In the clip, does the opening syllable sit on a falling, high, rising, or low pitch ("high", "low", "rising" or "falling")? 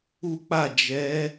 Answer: high